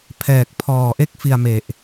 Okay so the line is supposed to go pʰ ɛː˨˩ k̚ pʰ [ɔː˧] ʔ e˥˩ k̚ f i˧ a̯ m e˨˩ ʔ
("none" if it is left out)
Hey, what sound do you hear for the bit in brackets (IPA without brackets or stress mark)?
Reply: ɔː˨˩